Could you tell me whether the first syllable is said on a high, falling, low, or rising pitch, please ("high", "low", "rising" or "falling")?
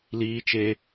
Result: high